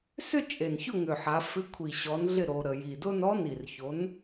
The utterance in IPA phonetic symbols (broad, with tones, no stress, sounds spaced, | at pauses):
s ʏ˥˧ t͡ʃʼ e˨˩ n ç ʊ˥˩ ŋ ʏ˨˩ ħ a˩˧ f ɪ˨˥ kʷʰ i˨˩ ɕ ɔ˨˥ n ɮ ɪ˥˩ ɾ o˩˧ ɾ ə˩˧ j i˨˩ d ʊ˥˧ n ɔ˦˥ n i˨˩ r ç o˨˥ n